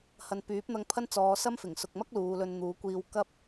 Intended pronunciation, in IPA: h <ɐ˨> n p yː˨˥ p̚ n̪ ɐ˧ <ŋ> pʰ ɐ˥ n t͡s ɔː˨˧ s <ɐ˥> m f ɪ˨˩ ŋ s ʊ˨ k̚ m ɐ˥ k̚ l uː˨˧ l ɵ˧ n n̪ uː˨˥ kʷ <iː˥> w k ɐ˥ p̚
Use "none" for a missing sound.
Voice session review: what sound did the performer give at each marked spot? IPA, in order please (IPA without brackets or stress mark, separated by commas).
ɐ˨, ŋ, ɐ˥, iː˧